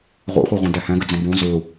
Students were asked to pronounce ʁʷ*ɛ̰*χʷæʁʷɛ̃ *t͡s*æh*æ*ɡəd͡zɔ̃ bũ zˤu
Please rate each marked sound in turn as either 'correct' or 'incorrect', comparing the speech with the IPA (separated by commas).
correct, incorrect, incorrect